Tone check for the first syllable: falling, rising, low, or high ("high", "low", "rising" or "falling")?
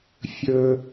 high